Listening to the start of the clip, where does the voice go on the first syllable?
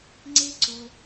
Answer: high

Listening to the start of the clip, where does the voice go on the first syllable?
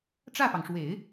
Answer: falling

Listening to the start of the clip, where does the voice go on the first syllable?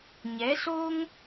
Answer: rising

